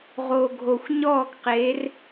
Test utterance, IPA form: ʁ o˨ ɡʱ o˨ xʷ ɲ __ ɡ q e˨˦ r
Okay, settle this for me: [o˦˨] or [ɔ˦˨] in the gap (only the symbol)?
ɔ˦˨